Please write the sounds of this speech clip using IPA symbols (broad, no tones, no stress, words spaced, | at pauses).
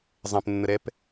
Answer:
zˤɛ̃pnːəɾɛp